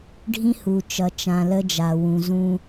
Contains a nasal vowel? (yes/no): yes